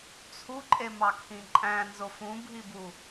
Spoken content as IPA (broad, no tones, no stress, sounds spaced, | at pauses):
t͡sʰ u ǃʼ e m ɑ kʰ ĩ ǃʼ æ̃ n z o f ũ bʱ i b u